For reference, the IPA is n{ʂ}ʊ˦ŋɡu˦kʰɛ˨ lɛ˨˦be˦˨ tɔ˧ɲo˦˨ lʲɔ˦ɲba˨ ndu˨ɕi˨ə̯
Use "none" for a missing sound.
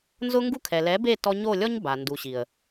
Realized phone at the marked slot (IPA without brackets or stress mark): z